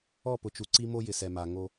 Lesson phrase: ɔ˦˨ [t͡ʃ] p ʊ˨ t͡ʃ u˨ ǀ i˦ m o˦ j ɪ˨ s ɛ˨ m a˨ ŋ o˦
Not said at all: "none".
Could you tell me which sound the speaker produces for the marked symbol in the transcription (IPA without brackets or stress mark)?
none